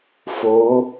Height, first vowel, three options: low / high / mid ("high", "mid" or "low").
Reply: mid